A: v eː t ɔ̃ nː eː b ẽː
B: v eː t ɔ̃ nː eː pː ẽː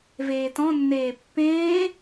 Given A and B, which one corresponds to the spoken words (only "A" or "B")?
B